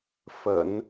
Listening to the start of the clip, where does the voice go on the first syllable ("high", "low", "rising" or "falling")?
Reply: low